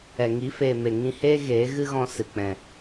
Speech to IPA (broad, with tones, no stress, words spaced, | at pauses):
ɛ˨ ŋi˨˦feː˨ me˨ŋĩ˧heː˦ ɣeː˨˦ɣɨ˦ɣɔ̃˧ sɨ˨k͡pɛ̃˨